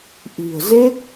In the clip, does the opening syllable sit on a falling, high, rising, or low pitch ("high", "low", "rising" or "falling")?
low